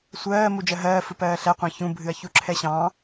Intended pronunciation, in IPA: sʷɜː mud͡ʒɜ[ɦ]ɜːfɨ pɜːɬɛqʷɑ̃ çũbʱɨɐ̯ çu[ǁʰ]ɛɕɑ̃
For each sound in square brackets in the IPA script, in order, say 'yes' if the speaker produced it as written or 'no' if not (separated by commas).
yes, yes